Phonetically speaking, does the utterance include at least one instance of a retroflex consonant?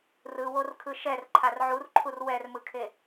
no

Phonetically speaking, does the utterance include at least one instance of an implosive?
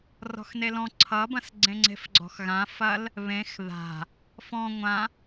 no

